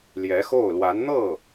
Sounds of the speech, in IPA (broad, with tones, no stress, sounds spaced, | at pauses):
l j ɛ˧˥ x o˥˩ ʊ̯ l w a˧˥ n n̪ ɤ˥˩